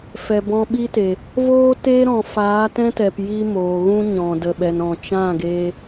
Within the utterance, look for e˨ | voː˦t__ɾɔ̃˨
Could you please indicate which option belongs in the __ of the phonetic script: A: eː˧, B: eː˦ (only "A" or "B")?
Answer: B